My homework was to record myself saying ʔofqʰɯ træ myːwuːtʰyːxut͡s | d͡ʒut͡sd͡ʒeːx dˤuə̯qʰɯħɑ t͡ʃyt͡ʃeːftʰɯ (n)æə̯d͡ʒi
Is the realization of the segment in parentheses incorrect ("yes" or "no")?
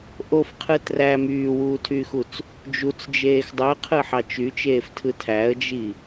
yes